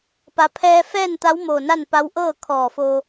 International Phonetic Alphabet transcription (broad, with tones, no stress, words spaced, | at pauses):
pa˩pʰɛː˧fɛː˥˨nt̪a˧˥w moː˧˩na˥˨npa˧˥w ʔɤː˥˨ kʰɔː˧˩ fo˧